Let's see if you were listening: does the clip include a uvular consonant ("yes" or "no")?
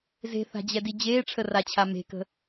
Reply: no